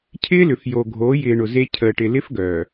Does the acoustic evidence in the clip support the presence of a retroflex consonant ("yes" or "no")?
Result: yes